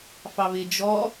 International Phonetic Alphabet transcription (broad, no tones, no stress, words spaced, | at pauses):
fɑβɪ d͡ʒɔ